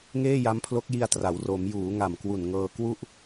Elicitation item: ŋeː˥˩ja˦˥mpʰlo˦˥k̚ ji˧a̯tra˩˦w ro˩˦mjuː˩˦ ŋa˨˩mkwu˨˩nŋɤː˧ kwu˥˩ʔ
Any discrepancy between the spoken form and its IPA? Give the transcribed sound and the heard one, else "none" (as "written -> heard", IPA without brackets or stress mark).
none